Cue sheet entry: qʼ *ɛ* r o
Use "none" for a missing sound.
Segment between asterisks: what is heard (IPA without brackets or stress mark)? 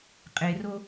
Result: e